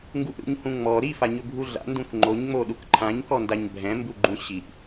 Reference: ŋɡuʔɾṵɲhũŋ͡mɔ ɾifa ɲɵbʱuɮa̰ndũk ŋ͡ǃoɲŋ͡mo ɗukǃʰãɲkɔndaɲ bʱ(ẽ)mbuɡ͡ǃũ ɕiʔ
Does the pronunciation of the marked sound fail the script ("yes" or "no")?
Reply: yes